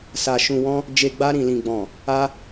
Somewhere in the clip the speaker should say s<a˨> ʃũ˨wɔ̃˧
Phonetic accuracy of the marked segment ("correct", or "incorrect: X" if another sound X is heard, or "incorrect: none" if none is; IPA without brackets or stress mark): correct